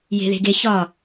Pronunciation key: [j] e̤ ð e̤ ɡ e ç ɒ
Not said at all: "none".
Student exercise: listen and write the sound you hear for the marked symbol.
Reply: j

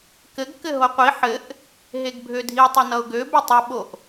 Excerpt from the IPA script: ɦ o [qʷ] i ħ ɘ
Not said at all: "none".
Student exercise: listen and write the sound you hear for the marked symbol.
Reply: qʷ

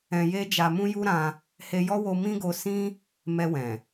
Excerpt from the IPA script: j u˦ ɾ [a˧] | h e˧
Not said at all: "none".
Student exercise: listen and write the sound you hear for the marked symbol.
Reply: ã˧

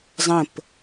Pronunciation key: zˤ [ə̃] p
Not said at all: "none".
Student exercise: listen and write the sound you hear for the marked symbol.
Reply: ə̃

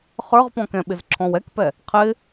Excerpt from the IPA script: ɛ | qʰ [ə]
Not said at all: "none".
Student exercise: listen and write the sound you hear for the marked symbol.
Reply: ɪ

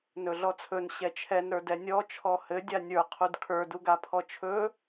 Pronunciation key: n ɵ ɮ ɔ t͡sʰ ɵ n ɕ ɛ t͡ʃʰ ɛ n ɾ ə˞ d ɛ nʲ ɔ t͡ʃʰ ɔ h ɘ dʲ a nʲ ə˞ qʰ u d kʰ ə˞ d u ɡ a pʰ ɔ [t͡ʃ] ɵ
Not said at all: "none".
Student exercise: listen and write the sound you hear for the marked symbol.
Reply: t͡ʃʰ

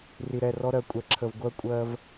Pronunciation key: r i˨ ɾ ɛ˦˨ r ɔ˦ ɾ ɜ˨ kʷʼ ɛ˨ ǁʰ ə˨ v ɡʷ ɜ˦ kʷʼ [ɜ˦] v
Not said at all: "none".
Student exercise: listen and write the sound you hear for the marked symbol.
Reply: ɜ˦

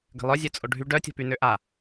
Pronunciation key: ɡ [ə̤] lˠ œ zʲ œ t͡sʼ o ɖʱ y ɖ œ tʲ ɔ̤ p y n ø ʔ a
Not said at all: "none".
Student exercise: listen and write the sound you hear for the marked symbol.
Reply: ə̤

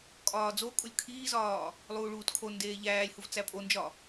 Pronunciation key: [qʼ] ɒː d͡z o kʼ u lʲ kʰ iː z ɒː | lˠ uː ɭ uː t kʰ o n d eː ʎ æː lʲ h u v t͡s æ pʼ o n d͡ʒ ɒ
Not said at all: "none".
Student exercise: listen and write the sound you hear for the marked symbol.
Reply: kʼ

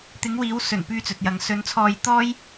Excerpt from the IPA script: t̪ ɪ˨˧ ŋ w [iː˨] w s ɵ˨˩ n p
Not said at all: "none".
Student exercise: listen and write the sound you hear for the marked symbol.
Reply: iː˨˧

